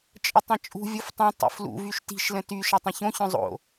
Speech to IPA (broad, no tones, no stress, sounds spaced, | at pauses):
t͡ʃʼ ə tˤ ɐ̃ t͡ʃʼ ṳ vʲ o f tˤ œ̃ tˤ ṵ f l ṵ v y ʃ t i̤ ʃ l ə̃ t y ʃ ɐ tˤ ɐ̃ ç õ ç œ̃ zˤ o̰